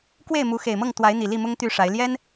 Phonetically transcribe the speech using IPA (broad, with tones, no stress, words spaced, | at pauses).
kwe˥˨ɪ̯mu˨˦ xe˨˩ɪ̯mɤ˥˨ŋt̪wa˨˦ɪ̯ n̪i˨˩li˥˨mʊ˦ŋ t̪y˥˨ʂa˨˦ɪ̯ ljɛ˦n